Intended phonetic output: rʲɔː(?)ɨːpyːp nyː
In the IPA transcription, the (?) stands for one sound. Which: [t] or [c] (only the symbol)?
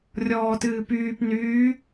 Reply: t